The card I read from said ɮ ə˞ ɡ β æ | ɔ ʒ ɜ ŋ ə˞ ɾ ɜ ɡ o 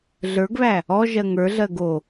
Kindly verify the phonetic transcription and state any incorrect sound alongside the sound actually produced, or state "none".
ɾ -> ɮ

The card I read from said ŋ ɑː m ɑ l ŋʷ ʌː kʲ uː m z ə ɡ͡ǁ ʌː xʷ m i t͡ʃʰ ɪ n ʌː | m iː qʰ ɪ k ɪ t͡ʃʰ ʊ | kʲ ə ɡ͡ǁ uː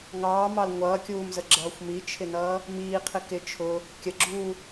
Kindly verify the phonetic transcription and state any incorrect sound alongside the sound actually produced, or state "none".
none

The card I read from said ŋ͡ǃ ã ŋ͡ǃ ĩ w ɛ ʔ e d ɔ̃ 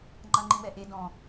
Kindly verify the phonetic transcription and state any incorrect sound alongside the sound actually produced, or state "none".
none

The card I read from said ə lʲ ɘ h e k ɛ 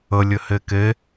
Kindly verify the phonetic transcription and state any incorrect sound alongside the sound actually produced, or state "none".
ɛ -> e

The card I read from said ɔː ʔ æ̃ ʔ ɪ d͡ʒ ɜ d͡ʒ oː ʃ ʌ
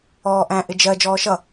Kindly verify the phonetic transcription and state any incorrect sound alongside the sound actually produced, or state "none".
oː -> ɔː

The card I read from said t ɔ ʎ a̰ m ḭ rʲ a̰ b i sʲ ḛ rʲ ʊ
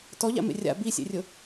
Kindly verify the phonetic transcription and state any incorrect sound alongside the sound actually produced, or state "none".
ḭ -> ḛ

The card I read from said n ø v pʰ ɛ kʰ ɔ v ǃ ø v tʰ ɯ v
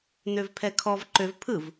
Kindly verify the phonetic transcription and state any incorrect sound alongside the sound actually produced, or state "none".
tʰ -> pʰ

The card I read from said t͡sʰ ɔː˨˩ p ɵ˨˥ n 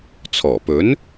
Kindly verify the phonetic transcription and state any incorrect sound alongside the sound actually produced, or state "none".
none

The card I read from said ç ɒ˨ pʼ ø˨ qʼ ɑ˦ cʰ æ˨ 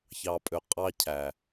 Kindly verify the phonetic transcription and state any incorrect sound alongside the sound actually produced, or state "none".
ɒ˨ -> ɑ˨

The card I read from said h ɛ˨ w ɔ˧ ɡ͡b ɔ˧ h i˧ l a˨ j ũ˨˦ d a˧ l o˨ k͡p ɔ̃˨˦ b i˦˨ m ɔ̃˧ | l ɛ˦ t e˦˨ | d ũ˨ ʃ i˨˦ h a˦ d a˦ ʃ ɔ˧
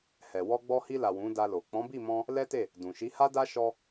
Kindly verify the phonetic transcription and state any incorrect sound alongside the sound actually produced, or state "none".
j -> w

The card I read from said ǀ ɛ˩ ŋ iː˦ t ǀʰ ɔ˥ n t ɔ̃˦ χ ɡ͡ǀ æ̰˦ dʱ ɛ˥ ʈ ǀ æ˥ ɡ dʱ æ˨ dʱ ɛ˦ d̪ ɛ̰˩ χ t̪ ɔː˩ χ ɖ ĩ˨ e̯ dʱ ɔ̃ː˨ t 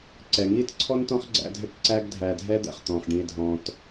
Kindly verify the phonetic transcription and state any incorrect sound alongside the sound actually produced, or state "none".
ɔː˩ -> ɔ̃ː˩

